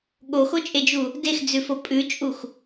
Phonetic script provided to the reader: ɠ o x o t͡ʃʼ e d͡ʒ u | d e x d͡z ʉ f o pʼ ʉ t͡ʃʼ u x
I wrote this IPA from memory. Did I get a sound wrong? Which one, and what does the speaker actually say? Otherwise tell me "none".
none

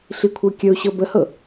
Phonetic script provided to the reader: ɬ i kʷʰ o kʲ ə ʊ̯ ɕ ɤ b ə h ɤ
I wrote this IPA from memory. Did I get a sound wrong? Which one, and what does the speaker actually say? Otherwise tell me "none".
o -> ɤ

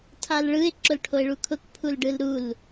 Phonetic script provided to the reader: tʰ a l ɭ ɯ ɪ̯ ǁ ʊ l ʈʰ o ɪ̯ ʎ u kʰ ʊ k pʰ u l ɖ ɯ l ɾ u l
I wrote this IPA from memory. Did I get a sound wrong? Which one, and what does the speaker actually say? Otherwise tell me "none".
ʎ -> ɭ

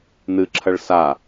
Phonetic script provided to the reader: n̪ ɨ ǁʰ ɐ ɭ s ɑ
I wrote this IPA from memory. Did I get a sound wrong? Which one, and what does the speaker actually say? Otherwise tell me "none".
ɑ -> a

